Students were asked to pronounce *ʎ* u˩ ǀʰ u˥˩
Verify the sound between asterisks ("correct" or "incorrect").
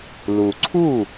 incorrect